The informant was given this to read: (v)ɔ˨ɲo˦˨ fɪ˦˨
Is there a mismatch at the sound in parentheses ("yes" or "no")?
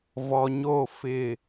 no